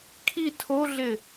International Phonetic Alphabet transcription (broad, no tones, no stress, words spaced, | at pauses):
kʰi tʰoɮɪ